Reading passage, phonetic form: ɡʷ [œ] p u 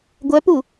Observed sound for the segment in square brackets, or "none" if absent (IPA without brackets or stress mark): œ